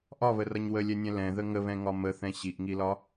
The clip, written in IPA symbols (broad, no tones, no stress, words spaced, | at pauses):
ʔɒβərʌɲ wəlʲɛnʲɛ̃ lɛ̃ðə ŋəβɛ̃ŋɒ məθɛ̃ ɕiʔŋilɒ